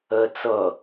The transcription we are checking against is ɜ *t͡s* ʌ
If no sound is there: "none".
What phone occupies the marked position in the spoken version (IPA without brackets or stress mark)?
t͡s